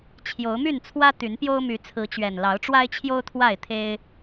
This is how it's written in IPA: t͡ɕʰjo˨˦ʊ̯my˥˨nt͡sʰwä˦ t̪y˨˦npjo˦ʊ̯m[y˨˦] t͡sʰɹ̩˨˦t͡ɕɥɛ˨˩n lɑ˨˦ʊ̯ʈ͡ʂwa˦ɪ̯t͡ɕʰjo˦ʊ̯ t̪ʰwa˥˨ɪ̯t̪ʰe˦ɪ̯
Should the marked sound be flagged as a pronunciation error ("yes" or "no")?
no